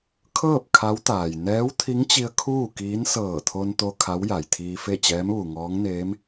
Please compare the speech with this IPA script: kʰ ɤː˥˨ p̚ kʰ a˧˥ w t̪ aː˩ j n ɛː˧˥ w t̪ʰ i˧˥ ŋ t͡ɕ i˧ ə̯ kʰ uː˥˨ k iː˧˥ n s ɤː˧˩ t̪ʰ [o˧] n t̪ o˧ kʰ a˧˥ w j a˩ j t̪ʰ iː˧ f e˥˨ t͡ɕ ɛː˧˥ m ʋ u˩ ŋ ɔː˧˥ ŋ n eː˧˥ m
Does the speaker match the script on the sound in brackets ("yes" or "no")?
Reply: yes